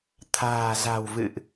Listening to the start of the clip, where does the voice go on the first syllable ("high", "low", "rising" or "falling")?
low